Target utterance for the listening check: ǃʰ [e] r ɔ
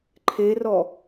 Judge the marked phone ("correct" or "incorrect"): correct